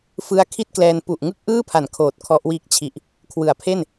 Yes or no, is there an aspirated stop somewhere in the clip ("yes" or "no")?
yes